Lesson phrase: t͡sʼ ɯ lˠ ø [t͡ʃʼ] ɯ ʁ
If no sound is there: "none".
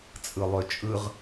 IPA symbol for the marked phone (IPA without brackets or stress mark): t͡ʃʼ